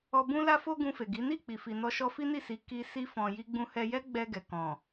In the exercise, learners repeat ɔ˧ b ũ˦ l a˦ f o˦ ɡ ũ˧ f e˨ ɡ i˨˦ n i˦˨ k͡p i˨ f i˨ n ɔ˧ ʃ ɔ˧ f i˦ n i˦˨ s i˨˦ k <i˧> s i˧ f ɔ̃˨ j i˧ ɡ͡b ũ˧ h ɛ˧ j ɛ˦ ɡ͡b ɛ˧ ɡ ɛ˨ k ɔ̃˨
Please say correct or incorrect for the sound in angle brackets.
correct